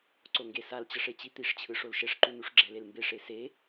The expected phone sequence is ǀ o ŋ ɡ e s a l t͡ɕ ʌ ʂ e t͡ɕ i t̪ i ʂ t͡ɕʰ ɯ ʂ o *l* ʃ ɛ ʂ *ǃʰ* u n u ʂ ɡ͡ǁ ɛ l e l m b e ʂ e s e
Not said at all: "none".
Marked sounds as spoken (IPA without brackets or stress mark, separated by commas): l, ǃ